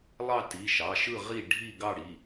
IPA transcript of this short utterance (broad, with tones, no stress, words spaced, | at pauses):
lˠɑ˦˨ti˩˧˩ʃɑ˩˧˩ ʃɯ˦˨ʁi˦˨ ɖʱi˦˨ɡɑ˦˨ɽi˩˧˩